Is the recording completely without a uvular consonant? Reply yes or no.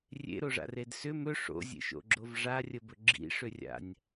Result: yes